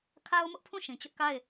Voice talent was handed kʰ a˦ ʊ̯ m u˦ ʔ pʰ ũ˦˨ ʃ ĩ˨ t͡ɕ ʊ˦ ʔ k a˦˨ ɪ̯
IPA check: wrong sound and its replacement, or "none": u˦ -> ʊ˦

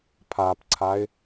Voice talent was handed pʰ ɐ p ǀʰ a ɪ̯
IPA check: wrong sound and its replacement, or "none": ɐ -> a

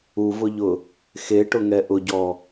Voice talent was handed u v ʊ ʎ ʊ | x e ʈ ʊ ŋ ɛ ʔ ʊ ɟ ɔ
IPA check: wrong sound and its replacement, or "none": none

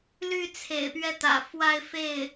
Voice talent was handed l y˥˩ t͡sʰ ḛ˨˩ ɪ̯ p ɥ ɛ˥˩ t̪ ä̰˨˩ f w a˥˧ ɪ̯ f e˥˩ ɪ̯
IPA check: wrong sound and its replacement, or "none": none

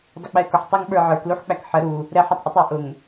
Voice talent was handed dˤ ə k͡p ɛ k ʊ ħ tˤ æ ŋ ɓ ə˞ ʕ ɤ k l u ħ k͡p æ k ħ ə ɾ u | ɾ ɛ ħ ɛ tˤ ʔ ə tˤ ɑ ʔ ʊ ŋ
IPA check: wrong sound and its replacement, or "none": ɤ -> ə˞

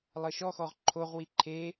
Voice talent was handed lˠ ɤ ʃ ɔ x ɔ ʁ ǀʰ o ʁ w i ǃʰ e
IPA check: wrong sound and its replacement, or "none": ǀʰ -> ǃʰ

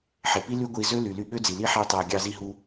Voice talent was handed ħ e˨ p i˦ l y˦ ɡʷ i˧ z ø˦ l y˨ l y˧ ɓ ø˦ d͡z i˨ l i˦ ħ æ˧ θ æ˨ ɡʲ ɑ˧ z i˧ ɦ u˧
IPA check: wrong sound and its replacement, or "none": θ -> tˤ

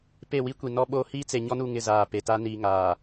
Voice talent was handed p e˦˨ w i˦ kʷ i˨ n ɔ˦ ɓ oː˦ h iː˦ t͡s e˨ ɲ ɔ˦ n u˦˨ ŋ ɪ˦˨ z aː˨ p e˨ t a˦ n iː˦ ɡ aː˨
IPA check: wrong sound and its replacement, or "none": ɡ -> ŋ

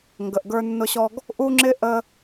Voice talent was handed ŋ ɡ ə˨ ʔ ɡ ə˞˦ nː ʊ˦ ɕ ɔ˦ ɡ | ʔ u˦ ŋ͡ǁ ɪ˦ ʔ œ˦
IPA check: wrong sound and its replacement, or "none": œ˦ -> ə˦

